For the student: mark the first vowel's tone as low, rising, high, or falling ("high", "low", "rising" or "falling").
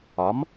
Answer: rising